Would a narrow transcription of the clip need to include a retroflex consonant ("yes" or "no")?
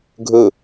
no